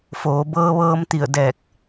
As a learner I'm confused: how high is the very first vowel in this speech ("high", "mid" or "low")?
mid